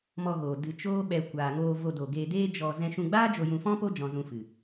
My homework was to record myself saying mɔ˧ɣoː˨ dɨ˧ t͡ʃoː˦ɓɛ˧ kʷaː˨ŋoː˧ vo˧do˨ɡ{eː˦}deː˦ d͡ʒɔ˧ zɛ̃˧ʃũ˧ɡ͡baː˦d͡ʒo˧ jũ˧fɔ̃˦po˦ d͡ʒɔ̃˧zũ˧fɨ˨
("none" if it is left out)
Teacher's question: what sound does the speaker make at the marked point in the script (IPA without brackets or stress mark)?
eː˧